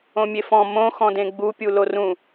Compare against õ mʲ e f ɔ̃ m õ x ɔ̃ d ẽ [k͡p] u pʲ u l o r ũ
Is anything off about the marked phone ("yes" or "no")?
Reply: yes